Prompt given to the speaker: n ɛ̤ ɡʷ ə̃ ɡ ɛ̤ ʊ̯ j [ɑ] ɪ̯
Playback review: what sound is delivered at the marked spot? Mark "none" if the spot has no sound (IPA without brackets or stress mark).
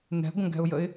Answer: ə